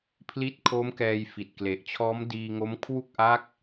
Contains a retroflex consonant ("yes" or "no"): no